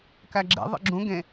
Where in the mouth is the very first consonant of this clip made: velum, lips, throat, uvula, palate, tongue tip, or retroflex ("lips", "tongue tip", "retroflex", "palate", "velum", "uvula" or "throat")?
velum